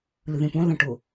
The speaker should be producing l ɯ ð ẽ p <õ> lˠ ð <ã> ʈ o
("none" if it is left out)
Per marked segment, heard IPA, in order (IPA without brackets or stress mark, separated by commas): ũ, ã